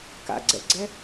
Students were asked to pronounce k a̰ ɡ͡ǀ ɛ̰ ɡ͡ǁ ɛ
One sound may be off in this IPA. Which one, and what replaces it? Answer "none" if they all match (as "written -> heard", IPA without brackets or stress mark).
ɡ͡ǁ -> ɡ͡ǀ